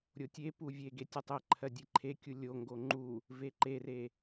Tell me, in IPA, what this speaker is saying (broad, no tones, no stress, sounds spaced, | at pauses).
ɾʲ o tʲ e p u vʲ e ɡ e tʲ u tˤ e ǃʰ ɜ dʲ e ǃʰ e kʲ u lʲ o ŋ ɡ o ŋ͡ǃ u | v e ǃ e r e